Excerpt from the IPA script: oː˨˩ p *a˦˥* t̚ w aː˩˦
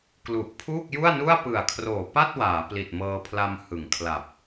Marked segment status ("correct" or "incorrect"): incorrect